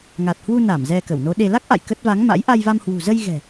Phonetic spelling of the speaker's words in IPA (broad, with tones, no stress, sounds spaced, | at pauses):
ŋ a˨˩ t̚ h w u˧ n a˧˩ m z ɛ˧ k ə˧˩ w n o˨˦ ɗ e˧ l a˦˥ k̚ ʔ a̰˧˨ j k ə˦˥ t̚ v a˨˦ ŋ m a̰˧˥ j ʔ a˧ j v a˧ m h w ṳ˨˩ z ə˧ j ɣ ɛ̤˨˩